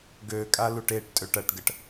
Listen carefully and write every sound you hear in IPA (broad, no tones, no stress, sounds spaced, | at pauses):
ɡ ø kʼ a l u ʈ e ʈ tʼ ø ʈ ɐ ʈ ɡ ə ʈ